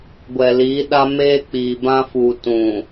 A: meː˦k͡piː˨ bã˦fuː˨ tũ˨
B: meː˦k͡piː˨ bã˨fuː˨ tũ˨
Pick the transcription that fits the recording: A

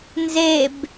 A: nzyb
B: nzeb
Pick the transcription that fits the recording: B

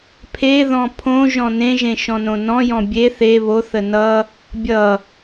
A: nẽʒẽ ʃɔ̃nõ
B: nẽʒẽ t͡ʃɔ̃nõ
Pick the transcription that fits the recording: A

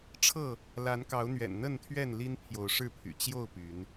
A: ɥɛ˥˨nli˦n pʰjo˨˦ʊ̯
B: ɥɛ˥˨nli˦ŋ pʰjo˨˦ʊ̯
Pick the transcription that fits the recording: A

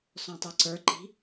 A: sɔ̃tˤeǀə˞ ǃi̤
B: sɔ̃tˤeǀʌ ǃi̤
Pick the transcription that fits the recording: A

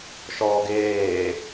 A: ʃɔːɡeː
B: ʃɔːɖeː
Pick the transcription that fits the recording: A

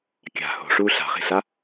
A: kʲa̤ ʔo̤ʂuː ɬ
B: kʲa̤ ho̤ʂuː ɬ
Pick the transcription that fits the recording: B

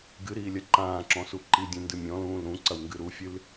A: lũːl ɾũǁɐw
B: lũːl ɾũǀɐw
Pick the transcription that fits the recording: B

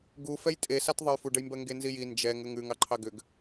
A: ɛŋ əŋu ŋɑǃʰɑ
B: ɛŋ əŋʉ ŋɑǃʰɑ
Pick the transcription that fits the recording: B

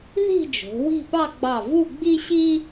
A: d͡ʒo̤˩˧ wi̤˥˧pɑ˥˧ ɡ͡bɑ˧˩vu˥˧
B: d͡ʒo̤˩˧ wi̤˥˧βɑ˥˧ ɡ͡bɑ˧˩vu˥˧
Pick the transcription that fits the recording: A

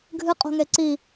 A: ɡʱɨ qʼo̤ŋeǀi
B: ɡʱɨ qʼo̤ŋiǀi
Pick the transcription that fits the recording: A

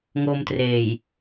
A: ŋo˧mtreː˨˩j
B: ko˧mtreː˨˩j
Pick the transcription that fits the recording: A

